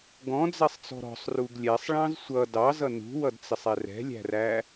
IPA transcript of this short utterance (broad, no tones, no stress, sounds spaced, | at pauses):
ɡ ɔ̃ d͡z ɛ sˤ t͡s ɔ̤ ɾ ɔ̤ sˤ r u ɡ lʲ ɛ sˤ ɭ ɑ̃ z sʷ ʌ d ɑ z ʌ n ṳ w ʌ d t͡s ɪ sˤ ɛ r ɛ̤ lʲ æ̤ r æ